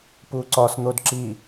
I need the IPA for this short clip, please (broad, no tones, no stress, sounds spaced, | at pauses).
p u ǀ ɒ s n̪ o d ǁ i